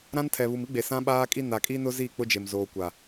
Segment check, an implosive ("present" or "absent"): present